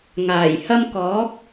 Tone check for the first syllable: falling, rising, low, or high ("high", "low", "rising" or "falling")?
low